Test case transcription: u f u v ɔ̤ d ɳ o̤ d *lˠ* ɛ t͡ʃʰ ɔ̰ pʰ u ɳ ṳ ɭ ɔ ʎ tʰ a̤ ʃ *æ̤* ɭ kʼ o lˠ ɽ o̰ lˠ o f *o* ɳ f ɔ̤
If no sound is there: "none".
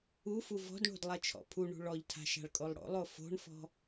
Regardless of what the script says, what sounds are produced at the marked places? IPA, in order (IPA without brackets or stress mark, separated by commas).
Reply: lˠ, a̤, o̤